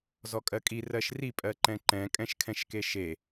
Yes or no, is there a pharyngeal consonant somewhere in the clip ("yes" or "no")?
no